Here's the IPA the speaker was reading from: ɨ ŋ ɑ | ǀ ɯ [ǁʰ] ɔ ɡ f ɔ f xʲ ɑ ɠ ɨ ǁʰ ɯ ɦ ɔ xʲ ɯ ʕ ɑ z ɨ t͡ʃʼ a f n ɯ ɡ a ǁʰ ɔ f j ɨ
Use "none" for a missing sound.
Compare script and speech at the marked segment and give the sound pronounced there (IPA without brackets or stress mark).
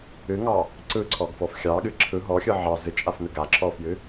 ǀʰ